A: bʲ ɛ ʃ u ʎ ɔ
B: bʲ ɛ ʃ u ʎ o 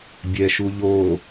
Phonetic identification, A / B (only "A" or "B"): B